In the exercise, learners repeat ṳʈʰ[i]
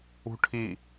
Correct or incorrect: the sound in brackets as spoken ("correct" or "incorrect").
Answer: correct